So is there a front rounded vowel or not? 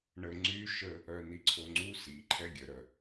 yes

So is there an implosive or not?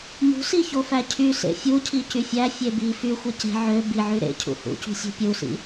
no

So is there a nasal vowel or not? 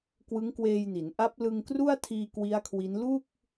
no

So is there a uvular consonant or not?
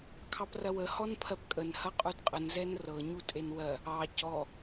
yes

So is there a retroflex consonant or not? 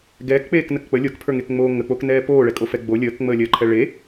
yes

